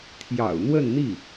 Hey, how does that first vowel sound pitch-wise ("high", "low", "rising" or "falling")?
low